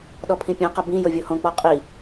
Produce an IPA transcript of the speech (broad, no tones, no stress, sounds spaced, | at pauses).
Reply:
ɗ ɔ pʰ ĩ pʲ õ q ɐ b ĩ j o vʲ o h õ k͡p ɔ qʼ i